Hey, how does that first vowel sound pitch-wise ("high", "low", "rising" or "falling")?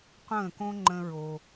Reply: falling